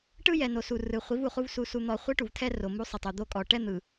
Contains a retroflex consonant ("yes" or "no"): yes